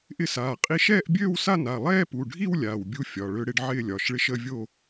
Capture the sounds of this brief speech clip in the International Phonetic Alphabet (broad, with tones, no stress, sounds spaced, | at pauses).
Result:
ʔ ɪ˥˧ s aː˩˧˩ qʼ i˥˧ ʃ ɛː˥˧ ʔ bʲ øː˥˧ w s a˥˧ n a˩˧˩ lˠ ɛː˥˧ p u˩˧˩ ɖʱ i˥˧ w lʲ aː˩˧˩ w bʲ u˥˧ fʲ ɒ˩˧˩ ɭ ø˥˧ ɽ ɪ˥˧ ɖ ʕ ɪː˥˧ lʲ ɒ˩˧˩ ʃ ɭ ɪ˥˧ ʃ ə˥˧ vʲ o˥˧